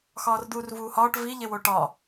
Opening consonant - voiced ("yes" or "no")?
no